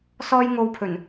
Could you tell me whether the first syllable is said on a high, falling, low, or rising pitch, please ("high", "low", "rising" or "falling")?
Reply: high